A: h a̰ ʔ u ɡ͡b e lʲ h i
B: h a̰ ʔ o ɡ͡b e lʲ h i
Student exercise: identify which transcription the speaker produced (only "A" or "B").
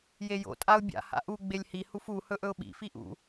A